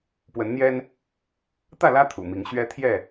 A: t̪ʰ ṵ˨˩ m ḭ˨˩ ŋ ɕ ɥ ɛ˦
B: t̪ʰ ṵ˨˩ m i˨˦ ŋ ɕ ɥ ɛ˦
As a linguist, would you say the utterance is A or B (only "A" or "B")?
B